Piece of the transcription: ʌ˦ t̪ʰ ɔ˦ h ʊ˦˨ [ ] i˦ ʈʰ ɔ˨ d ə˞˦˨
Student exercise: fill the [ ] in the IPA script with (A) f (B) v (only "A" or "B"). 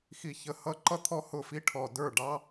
A